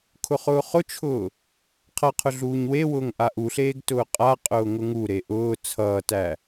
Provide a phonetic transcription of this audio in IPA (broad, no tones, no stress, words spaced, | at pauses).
kʰʊχʊːχʊt͡ʃʰʊː | qʰʌqʰʊ ɮuːɲwewʊːŋ ʔaʔuɬeːɡ tʊːqʼaqʼʊː ŋʊŋuɾe ʔʊː t͡sʰʌːtæ